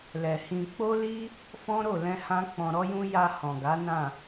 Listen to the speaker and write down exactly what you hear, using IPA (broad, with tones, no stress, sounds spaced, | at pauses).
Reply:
l ɛ˨ h ĩ˧ k͡p o˦ l i˦ | f ɔ̃˦ ɾ o˦˨ l ɛ̃˧ h ã˦ k͡p ɔ̃˧ ɾ ɔ˦ j ũ˦ j a˧ h ɔ̃˨ ɡ a˨˦ n ã˦˨